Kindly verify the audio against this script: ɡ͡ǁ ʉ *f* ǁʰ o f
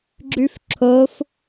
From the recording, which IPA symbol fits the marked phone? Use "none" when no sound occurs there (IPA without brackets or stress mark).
f